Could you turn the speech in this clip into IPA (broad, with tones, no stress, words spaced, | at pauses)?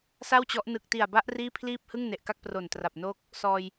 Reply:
sa˥˩wt͡ɕɔ˦˥ʔ nɯ˨˩k̚ti˨˩a̯ba˦˥ʔ riː˥˩pʰliː˥˩p̚ hɯ˥˩ŋne˨˩ʔka˥˩k̚ pro˨˩ntra˨˩p̚noː˦˥k̚ | sɔː˧j